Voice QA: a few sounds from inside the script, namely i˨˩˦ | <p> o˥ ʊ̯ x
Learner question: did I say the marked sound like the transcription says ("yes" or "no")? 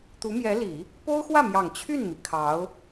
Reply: yes